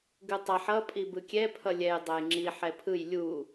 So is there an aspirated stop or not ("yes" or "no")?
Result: yes